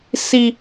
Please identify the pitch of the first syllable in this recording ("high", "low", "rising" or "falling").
high